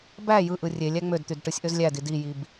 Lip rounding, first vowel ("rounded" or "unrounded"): unrounded